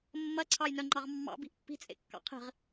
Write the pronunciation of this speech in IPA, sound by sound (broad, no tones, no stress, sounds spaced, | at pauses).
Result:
mː ɐ ǀʰ ɑ j n œ ŋ͡ǃ ɑ ʁ mː ɑ̰ b i̤ ʔ pː i̤ t͡sʼ ḛ kː ɑ̰ qʰ i̤ ʁ